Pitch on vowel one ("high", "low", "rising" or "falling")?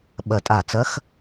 low